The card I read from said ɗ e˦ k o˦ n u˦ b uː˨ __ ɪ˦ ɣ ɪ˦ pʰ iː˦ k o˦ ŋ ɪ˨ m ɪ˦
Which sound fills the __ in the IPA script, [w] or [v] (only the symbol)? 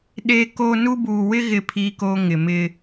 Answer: w